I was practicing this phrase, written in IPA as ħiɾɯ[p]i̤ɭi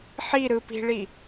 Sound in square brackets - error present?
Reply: no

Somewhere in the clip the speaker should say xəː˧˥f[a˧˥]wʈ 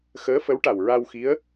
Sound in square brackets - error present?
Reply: yes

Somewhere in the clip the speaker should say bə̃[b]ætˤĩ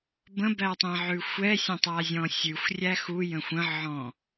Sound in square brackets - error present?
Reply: no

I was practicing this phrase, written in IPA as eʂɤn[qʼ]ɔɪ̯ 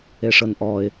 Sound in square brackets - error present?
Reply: yes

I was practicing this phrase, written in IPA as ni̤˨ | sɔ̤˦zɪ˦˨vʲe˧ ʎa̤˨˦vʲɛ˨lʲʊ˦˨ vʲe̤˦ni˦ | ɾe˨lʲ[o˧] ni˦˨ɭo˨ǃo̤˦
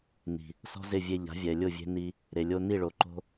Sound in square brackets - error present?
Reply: no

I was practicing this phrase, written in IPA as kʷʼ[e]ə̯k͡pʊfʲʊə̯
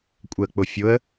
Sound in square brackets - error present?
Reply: yes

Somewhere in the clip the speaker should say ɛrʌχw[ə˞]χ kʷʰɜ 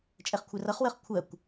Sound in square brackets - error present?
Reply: yes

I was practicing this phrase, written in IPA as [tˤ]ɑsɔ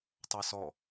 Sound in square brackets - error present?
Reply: no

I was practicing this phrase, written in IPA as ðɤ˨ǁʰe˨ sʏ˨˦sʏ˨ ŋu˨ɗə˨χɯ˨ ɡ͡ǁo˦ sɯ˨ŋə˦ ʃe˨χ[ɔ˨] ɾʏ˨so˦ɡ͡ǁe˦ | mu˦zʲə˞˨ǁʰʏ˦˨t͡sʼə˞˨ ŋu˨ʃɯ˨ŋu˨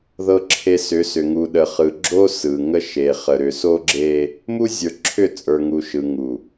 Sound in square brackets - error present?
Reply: yes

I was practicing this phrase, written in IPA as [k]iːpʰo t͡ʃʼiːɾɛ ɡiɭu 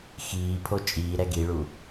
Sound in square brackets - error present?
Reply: yes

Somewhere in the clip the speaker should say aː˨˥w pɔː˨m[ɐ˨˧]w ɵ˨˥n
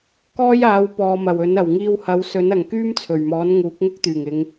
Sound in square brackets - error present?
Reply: yes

